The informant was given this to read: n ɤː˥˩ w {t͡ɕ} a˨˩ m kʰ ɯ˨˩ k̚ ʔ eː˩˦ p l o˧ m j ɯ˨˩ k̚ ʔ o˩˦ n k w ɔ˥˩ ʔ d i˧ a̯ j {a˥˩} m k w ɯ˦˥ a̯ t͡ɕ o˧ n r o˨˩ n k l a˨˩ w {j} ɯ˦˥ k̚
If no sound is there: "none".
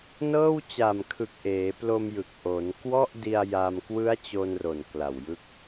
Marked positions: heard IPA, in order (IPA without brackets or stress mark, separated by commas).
t͡ɕ, a˧, j